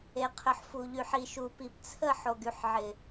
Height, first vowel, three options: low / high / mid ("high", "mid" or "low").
mid